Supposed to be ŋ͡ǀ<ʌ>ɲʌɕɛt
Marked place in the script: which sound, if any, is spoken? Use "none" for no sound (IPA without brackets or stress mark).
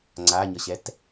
a